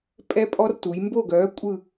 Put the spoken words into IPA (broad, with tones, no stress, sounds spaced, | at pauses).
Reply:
pʼ ɛ˦ pʼ ɔ˦ r t u˩˧ j m b o˦˨ ɡ œː˨˥ kʷʼ ɯ˦˨